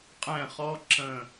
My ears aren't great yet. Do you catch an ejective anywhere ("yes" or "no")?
yes